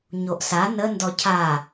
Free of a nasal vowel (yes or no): yes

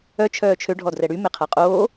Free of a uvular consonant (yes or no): no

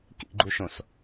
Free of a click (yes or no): no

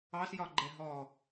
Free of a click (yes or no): no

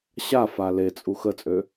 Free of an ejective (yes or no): no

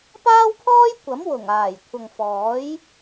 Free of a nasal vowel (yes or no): yes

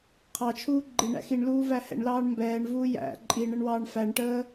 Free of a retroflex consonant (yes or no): no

